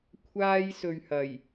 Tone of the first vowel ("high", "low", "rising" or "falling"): high